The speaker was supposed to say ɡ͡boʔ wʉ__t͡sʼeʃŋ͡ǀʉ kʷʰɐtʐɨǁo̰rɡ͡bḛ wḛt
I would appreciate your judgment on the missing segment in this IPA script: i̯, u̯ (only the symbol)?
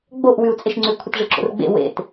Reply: u̯